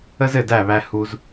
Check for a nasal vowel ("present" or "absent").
absent